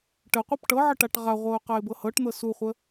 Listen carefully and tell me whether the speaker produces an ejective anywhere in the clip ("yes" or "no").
no